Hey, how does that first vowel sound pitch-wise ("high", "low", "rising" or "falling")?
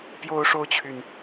high